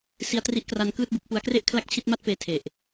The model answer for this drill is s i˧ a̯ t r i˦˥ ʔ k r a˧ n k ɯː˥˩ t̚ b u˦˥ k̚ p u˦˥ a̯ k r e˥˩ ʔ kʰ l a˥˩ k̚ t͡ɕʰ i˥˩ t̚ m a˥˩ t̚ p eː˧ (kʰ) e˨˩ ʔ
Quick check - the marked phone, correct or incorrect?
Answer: incorrect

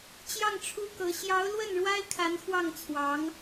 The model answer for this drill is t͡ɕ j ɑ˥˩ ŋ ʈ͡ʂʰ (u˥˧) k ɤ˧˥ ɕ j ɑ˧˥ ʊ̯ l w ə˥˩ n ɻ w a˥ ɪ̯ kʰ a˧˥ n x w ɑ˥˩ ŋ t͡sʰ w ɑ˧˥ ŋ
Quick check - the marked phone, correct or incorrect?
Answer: incorrect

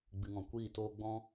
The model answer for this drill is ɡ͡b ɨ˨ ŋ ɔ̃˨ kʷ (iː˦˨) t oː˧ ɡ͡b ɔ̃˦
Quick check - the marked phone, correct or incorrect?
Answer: correct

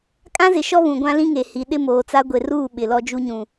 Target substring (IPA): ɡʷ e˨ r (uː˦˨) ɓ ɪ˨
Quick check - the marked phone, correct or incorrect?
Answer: correct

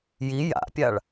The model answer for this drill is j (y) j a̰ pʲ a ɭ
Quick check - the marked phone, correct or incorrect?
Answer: incorrect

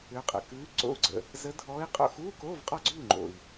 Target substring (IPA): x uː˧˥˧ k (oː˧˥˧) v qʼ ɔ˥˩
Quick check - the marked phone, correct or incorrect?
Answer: correct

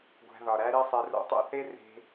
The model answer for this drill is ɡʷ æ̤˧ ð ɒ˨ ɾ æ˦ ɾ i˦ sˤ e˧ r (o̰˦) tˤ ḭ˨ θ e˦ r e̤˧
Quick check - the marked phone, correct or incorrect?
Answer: incorrect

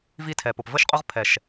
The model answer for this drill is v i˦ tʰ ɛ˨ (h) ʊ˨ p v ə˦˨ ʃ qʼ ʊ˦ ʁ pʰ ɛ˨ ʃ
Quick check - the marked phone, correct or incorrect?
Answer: incorrect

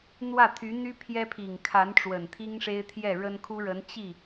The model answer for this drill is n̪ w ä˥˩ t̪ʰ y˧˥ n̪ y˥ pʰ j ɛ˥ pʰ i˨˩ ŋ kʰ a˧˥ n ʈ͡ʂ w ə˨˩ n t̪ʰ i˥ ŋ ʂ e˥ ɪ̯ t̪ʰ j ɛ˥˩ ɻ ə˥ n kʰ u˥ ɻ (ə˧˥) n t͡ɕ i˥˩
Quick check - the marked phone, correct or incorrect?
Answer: correct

